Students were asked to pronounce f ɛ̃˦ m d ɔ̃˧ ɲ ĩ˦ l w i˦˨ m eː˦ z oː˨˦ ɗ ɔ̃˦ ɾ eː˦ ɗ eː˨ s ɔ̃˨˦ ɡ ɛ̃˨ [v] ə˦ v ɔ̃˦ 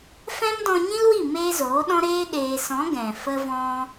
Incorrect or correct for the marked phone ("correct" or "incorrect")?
incorrect